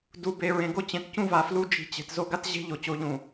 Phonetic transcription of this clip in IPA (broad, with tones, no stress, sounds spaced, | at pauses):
d u˨ b e˨ ɹ ẽ˨ ɡ o˦ t͡ɕ ẽ˨ t c ũ˦ v a˨ f l u˦ d͡ʒ i̤˦˨ t͡ɕ e̤˨ t z o˦ ɡ a˦ t ʑ e̤˦ ʎ o˨ t͡ɕ o˦ ʎ ũ˨